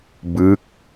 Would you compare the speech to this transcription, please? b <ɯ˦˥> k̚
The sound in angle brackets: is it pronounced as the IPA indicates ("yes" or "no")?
yes